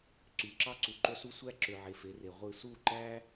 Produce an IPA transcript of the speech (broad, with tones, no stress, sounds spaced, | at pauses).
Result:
ǀ y˨˦ ǁ ɑ˦ ǀ u˨ ǃ o˦ s u˦ sʷ æ˦ ǁ ø˨ ʕ e˨ f e˨˦ r e˨ ʁʷ ɯ˦˨ s u˦˨ ǃ æ˦